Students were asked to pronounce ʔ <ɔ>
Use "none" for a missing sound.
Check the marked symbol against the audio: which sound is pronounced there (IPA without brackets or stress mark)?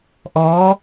ɔ